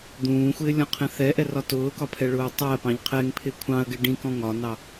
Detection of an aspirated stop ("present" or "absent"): present